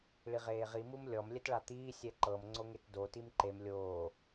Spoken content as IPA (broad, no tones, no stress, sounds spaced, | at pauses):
ɭ i ʁ eː ʁ i m u m lʲ ɔ m lʲ ɛ t ɭ a t̪ iː sʲ ɛ ǃ ɤ m ŋ͡ǀ o ŋ e t d o t i m ǃ e m lʲ oː